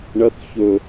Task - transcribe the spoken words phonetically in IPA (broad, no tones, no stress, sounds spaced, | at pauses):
ɳ ɐ θ ç ɵ